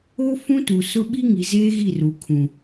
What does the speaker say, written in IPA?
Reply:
o˦ fũ˦tu˨sʊ˦ ɓi˦ŋi˨zeː˦ ɣi˦˨ru˨kʰũ˨

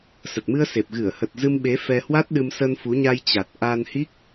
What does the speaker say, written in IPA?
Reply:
sə˨˩t̚mɨ˧ə̯se˨˩p̚ ɣɨ˧˩ə̯hə˨˩t̚ zɨ˧mɓe˨˦ fɛ˧hwa˦˥t̚ɗɨ˧m sə˧nfu˨˦ɲa˧j t͡ɕa˨˩t̚ ʔa˧nhi˦˥k̚

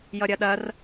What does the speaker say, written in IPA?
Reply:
jʌɾʲɐɗɐr

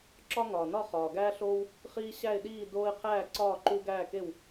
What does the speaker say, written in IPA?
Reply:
ǁɒ˦ŋɒː˩nɒ˥˩ χɒː˩ɡæː˦ɬoː˦w | χiː˦ɕæ˥˩ɪ̯ɗiː˥˩ doː˦ɪ̯qʰæː˥˩ǀɒː˥˩ ǃu˦ɡæː˥˩ke˥˩w

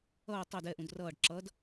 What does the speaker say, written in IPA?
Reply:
ʌː tˤɜd ɛʔũd rʌːɖ ǁʌd

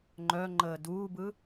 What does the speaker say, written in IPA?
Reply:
ŋ͡ǃœŋ͡ǃəː duːbɯ

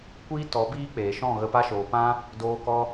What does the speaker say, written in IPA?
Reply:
kʷiː˦tɔ˨˦ biː˦k͡peː˨ʃɔ̃˦˨ ɣə˧pa˦ʃoː˨pã˦ | doː˧kɔ˧

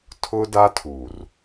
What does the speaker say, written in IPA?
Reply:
tʰʊ˦da˦ tʰu˨r

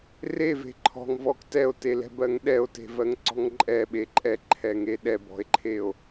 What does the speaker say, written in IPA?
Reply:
reve̤ ǃʰɔ̤ŋvɔk tɛo̯telɛ̤bɜŋ ɗɛo̯te̤vɜŋǀɔ̤ŋ ǃʼɛɓe ǃʼɛǃʰɛŋe ɗɛbɔ̤e̯ǃʰeo̯

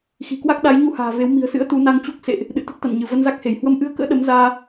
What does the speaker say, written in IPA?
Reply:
xi̤˨˩kwa˦˥k̚ ɗa˨˦jɲu˧ha̤ː˨˩ve˨˦w mi̤˨˩ə̯sɨ̰˧˥ə̯ t̪u˨˦na˧ŋt͡ɕu˦˥k̚ sḛ˧˨ʔ | ɗɨ̰˧˨t̪ə˦˥t̚t̪a̰˧˨nɲɨ˧˩ və˧nza˦˥k̚he˧˩j hwə˧mʔɨ˧ə̯kə̰ː˧˥ ɗə˨˦mzaː˧

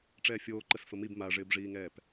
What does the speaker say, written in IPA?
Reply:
ʈ͡ʂɛːfʲoːǃəs fəmib maʐɪːbʐiːŋɛːp

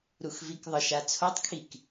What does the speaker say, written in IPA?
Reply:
ɾuxvikðˤɨʃa t͡sʰotˤkʰik

